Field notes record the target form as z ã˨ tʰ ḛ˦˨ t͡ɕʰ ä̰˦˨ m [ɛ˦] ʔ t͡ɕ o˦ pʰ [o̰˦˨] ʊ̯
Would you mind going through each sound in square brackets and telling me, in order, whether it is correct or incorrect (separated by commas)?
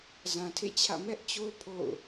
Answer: correct, correct